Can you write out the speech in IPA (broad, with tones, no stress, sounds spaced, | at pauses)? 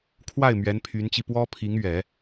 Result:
kʰ w a˥˩ ɪ̯ m ɥ ɛ˧˥ n pʰ y˧˥ n t͡ɕ i˧ p w ɔ˥ pʰ i˧˥ ŋ ɥ ɛ˨˩˦